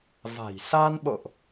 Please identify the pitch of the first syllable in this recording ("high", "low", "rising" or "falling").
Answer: low